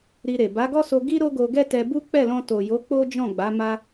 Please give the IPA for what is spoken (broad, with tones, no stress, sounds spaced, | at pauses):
ɾ i˧ ɾ e˨ b a˨˦ ɡ ɔ˦ s o˧ ɡ i˦ ɾ o˦ ɡ o˧ ɡ ɛ˦ t ɛ˧ b u˦ k͡p ɛ˦˨ l ɔ̃˧ t o˨ j o˨˦ k͡p o˦ d͡ʒ ɔ̃˦˨ ɡ͡b a˨˦ m a˧